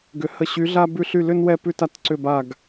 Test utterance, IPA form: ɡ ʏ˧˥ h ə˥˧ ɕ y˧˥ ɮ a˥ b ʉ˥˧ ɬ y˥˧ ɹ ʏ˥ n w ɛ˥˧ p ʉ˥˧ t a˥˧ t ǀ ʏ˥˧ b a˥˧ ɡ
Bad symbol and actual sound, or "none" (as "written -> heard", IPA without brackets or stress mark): ɹ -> l